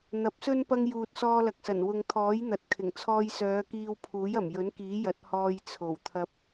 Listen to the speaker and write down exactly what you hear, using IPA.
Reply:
n̪ ɐ˨˥ p̚ s ɵ˥ n p ɐ˧ ŋ j uː˨ t̚ s ɔː˧ l ɐ˨ k̚ s ɐ˨˩ n w ʊ˨ ŋ t̪ʰ ɔː˨˥ j n̪ ɐ˨ t̚ kʰ ɪ˨˩ ŋ t͡sʰ ɔː˧ j s œː˨˧ k iː˧ w pʰ uː˨˥ j ɐ˨˩ m j ɵ˨˥ n k iː˨˥ j ɐ˨˥ t̚ h ɔː˧ j t͡sʰ o˨˩ w t̪ʰ ɐ˧ p̚

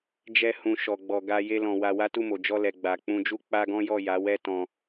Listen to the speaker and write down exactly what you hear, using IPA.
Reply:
d͡ʒ ɛ˦ h ũ˧ ʃ ɔ˧ ɡ͡b ɔ˧ ɡ a˦ j e˦ l ɔ̃˧ w a˧ w a˦ t u˦˨ m o˨ d͡ʒ ɔ˧ l ɛ˨ ɡ͡b a˨ k͡p ũ˧ d͡ʒ u˦ k͡p a˦ ɡ ɔ̃˦ j ɔ˦˨ j a˨˦ w ɛ˦ t ɔ̃˧

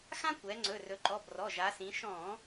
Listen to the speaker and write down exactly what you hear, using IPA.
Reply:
x ã˥ kʷ ɛ˩˧ ŋ͡ǀ ɵ˩˧˩ r ɵ˩˧ ǃ ɔ˩˧˩ b r ɔ˩˧˩ ʒ a˩˧ s ĩ˩˧ ʃ ɔ̃˧˩˧

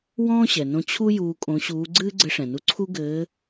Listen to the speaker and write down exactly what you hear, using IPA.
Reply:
w ɔ̃ː˥ ɕ ɛ˩ n õ˧ t͡ɕʰ u˥ j uː˧ kʼ õ˧˥ ɕ uː˧˥ ɡ͡ǀ ɨː˥ ɡ͡ǀ ɘ˧˥ ʂ ɛ̃˩ n u˧ ǀʰ u˥ ɡ ɘː˧˥

